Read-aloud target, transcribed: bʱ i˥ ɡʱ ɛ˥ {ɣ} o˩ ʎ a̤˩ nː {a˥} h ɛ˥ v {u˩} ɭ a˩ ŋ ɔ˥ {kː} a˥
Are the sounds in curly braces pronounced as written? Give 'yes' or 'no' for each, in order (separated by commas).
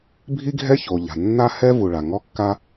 no, yes, yes, yes